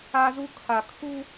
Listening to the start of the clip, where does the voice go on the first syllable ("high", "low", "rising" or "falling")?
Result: high